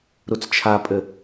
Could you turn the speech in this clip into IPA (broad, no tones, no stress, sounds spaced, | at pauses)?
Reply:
ɾ u t͡s t͡ʃʰ a pʼ ɘ